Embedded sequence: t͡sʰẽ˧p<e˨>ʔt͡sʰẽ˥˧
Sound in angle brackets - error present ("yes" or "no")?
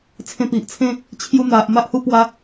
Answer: yes